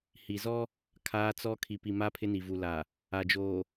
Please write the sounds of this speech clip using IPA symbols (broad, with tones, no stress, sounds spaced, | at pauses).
h i˨ z ɔ˦ | kʰ aː˦ t͡s ɔ˦ kʰ i˨ p i˨ m a˦ pʰ ɪ˦ n i˨ v u˨ l aː˨ | a˨ d͡ʒ oː˨